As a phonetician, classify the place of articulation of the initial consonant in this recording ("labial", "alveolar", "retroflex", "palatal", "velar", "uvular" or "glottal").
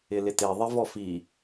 alveolar